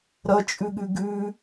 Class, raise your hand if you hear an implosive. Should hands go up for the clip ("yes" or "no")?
yes